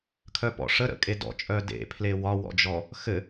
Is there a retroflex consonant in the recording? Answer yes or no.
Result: yes